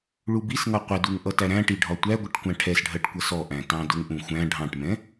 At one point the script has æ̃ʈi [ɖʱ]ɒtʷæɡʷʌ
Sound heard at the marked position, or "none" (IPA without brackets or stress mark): ɖʱ